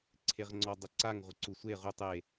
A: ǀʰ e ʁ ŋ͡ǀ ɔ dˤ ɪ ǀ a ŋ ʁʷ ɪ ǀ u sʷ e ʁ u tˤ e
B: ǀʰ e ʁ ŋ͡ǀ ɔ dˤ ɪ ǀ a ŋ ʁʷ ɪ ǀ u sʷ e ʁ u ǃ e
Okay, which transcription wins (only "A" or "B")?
A